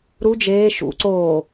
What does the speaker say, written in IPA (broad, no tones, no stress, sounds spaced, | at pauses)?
ɾ u d͡ʒ eː ʃ ṵ ǀ oː